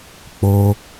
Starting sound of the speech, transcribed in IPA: k͡p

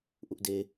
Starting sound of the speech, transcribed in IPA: ʔ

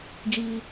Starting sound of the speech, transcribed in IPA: d͡ʒ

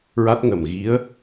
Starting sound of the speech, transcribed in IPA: ɹ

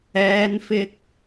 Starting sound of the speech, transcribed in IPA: ɛː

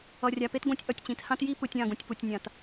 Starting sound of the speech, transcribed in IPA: ʌ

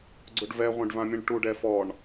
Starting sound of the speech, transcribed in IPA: ɡ͡ǀ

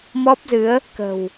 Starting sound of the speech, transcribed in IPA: m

